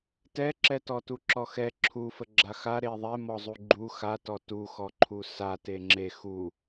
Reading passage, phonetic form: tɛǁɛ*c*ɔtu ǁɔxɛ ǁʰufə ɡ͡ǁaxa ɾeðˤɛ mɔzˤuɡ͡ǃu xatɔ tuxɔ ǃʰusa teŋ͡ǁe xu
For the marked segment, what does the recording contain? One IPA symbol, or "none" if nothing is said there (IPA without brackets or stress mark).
t